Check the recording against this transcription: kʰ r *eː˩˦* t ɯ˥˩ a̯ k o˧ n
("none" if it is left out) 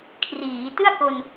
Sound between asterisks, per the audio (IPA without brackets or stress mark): iː˩˦